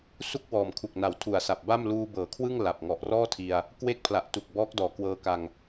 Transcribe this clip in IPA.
s u˥˩ k̚ w ɔː˨˩ m kʰ u˨˩ k̚ n a˩˦ w tʰ u˨˩ a̯ s a˨˩ p̚ b a˥˩ m l uː˧ b ɤː˩˦ kʰ w ɯ˥˩ ŋ l a˨˩ p̚ ŋ ɔ˨˩ ʔ r ɔː˥˩ tʰ i˧ a̯ | k w e˦˥ k̚ pʰ l a˨˩ ʔ t u˨˩ k̚ b ɔː˦˥ k̚ d ɔː˨˩ k w ɤː˧ k a˧ ŋ

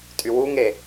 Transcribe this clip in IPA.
tʼ y w u ŋ e

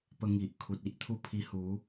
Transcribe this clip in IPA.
p ə˧ ŋ i˨ ʔ kʰ u˨ t̚ i˦ ʔ t̪ʰ u˧ pʰ i˧ h u˨˦

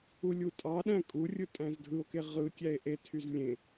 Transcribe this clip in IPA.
u lʲ u tʼ ɑ ɗ æ̃ kʼ u rʲ ɯ tʼ æ̃ z dʱ ɯ o̯ k e ʁ ɯ tʲ æ e̯ ʔ e tʰ y z lʲ ẽ

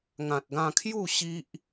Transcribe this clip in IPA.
ŋ ã˨ t̚ ɡ ã˧ kʰ j u˥˧ ɕ i˦ ʔ

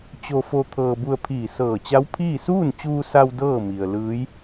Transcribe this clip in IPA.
t͡ɕ o˧ f o˧ t̪ʰ ɤː˧ b u˧ ə̯ pʰ iː˧˩ s ɤː˧˩ t͡ɕ a˧˥ w pʰ iː˥˨ s uː˥˨ n t͡ɕ uː˧ s a˧ w d ɤː˥˨ m i˩ ə̯ l ɯː˧˥ j

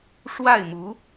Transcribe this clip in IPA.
ʂ w a˥˩ ɪ̯ m u˧˥

